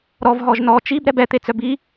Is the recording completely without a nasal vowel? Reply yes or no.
yes